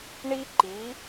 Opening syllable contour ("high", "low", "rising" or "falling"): high